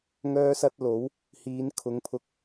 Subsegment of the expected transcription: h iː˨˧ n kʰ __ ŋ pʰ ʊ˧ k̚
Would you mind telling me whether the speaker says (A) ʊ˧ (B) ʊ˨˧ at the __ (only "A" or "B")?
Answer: B